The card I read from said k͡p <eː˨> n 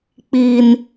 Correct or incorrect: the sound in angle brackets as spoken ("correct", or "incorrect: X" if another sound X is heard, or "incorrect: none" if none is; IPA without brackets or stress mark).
incorrect: iː˨